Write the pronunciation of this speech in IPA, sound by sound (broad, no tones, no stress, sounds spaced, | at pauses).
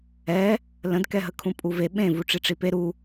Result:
ɛ | l ə̃ d k ɛ ɦ ə kʰ ũ pʼ u v e ɓ ẽ v u ʈ͡ʂ i ʈ͡ʂ i p e ɾ u